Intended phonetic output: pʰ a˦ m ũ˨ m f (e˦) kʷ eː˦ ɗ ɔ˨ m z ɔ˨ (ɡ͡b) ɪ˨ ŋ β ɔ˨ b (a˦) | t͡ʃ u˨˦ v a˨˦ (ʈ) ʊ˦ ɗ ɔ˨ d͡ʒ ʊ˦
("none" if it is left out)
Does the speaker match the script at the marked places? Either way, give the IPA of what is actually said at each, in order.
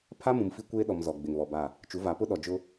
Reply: i˦, ɡ͡b, a˦˨, p

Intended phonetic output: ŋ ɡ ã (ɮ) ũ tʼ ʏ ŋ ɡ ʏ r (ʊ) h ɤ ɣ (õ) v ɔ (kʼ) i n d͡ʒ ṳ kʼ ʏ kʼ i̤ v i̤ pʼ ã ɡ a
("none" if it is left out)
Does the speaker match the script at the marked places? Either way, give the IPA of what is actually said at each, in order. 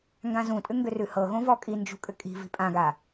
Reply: z, ʉ, õ, kʼ

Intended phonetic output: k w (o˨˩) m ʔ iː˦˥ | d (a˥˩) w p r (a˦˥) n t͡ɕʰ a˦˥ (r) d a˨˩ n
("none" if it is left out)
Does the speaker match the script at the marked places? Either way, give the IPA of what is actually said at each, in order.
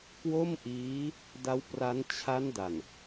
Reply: o˥˩, a˦˥, a˦˥, n

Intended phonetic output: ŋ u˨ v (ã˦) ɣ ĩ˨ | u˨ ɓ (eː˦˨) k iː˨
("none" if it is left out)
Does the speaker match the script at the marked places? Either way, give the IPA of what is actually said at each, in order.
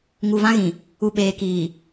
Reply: ã˦, eː˨

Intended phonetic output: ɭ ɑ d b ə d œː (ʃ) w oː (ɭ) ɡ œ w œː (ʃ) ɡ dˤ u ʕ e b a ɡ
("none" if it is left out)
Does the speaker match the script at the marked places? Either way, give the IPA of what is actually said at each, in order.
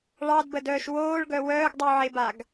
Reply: ʃ, ɭ, none

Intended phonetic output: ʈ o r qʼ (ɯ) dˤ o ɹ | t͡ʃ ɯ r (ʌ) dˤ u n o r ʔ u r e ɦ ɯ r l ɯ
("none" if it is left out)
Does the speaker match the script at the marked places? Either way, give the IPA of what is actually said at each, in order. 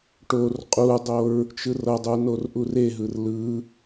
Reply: u, ʌ

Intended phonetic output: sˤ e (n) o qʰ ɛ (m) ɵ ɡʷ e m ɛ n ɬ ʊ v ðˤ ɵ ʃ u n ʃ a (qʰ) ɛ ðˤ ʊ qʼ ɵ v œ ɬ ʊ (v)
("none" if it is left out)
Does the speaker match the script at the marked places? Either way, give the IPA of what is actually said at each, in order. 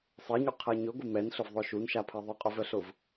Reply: ɲ, ɲ, pʰ, v

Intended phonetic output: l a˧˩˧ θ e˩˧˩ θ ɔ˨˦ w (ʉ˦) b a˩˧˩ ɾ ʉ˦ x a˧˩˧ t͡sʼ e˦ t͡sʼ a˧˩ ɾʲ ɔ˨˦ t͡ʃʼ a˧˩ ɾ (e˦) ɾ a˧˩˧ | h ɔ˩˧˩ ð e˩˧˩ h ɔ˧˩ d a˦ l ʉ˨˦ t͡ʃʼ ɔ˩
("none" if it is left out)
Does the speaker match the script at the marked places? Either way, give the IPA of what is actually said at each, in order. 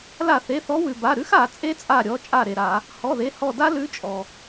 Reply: ʉ˩, e˩

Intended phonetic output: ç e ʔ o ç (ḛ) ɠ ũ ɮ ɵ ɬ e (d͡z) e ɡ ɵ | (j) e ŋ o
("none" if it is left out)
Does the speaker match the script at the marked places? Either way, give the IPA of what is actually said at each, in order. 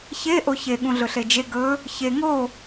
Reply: e, d͡ʒ, ç

